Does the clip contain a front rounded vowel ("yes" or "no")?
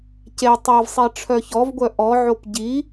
yes